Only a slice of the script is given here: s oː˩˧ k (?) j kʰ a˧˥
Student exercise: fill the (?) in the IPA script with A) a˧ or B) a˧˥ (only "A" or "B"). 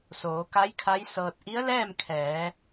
B